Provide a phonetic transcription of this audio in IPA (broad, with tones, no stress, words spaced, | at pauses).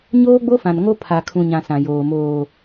ɲoː˦ɡ͡bo˦fã˨nŋo˦ pʰa˨kʰũ˨ɲã˨ sã˨joː˨ moː˨